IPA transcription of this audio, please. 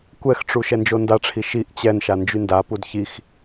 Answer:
kʷɛxʈ͡ʂu ʃɛnd͡ʒondaʈ͡ʂʰi ʃiʔ t͡ɕɛnʃa nd͡ʒyndapud çix

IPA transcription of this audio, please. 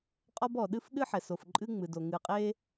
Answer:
qʼɔ˥bɔ˩ɗɨ˥f ɗɨ˥ħɛ˩so˩f ǃʼɨ˥ŋ͡mɨ˩do˩ ŋɨ˩qʼe˥

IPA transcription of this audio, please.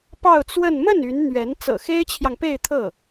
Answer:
pɑ˥˧ʊ̯t͡swə˥˧n mə˥˩n y˧˥nn̪ɥɛ˧˥n t͡sɤ̰˨˩xe˥ɪ̯t͡ɕʰjɑ˨ŋpe˥˧ɪ̯ t̪ʰɤ˥˩

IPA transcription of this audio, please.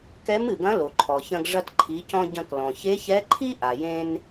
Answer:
kɛ˧˥mɨ˩ɡɐ̃˧˥ lo˩ǃʰɔ˩çɐ̃˧ɡ ʐɐ˧tǃʰi˩˧cɔ̃˧ ɟɐ̃˧klɔ̃˩ çe˧˥çɛ˧˥ǃʰi˥ʔa˩ jẽ˧n

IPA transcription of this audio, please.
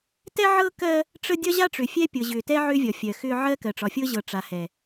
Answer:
tɛ˦ʕɤ˦kɜ˦ | ʈ͡ʂə˦ dʲɒ˦ʑa˦ʈ͡ʂʏ˨ fʲɛ˦pʲɤ˨ʑʏː˨tɛ˦ ʕʏː˦vʲɒ˨ fʲɜ˨xʏː˦ ʕɜ˦kɜ˨ʈ͡ʂɒ˨fʲɤ˦ ʑɤ˨ʈ͡ʂa˨hɛ˨

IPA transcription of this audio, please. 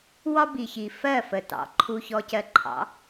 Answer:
wɒ˦bi˨çi˨ fɜ˦˨fə˨tɑ̰˨ ǃʰu˧çɔ˧cɜ˧ǃʰɑ̰˨˦

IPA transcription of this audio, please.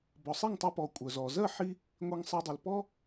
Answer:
bɔ˩sˤi˥˩ŋtˤœ˧pɔ˩ kʷʼœ˩zɔ˩zɜ˥˩ħi˧ | ŋʷe˧ŋsˤɜ˧dˤi˩l pɔ˥

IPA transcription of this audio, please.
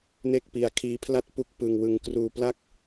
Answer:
ne˥˩k̚pi˧a̯ kʰiː˦˥pʰla˥˩t̚ pu˥˩k̚pɯ˧ŋwɯ˧ŋ kruː˧pla˥˩k̚

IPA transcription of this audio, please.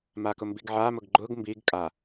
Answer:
makʊmbiɡʕa mʊɡɡ͡ǃʊɡ mbiɡ kʼa

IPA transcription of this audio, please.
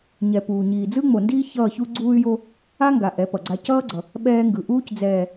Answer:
ɲɛ˨puː˨ ɲiː˨d͡zɯ˦ŋ͡mo˨ndiː˦ çʌː˦˨çu˦ ɡ͡ǀuː˦y̯jo˦ | a˦ŋɡa˨ ʔɛ˨˦ pʌ˨ɡ͡ǀa˦ cʌː˦ɡ͡ǀʌ˨ | ɓɛː˦ŋɡɯ˨ ʔuː˦cd͡zɛː˨

